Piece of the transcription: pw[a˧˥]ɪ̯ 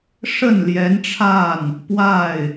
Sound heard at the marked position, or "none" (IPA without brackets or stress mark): a˥˩